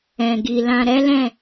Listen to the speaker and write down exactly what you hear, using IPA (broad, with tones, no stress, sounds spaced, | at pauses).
ɛ̃˨ ɡ i˨ l ã˨ ɾ ɛ˨˦ l ɛ̃˦˨